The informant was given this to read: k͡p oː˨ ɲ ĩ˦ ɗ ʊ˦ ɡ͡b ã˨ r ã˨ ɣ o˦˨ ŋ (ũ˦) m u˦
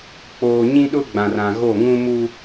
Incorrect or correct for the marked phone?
correct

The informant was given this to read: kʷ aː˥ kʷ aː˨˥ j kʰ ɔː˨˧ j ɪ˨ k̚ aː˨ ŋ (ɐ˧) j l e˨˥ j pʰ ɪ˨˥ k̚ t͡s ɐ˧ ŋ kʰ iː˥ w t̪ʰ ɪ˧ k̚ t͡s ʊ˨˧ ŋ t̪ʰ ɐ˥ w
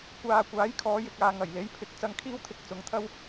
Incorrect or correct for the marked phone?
incorrect: ɐ˨˩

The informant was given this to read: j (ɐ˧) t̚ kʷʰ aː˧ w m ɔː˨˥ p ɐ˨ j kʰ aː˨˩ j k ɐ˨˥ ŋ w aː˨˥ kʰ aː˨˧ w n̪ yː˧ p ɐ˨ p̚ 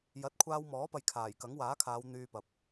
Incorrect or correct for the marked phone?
incorrect: ɐ˨˥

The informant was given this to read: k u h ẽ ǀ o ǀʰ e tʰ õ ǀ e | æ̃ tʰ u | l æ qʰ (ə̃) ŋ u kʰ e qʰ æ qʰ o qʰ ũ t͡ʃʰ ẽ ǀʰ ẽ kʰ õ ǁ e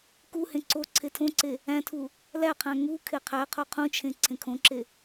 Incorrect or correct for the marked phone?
incorrect: æ̃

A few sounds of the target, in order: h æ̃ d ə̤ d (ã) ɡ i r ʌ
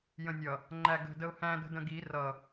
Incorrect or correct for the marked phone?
incorrect: ə̃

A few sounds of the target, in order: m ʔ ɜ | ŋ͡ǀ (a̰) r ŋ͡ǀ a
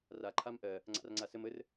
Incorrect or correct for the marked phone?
correct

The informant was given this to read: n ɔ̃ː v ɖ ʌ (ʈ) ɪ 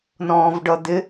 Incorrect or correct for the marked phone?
incorrect: d̪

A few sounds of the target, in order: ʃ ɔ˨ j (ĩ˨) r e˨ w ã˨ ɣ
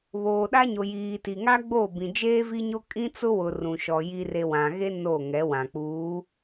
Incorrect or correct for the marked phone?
incorrect: i˨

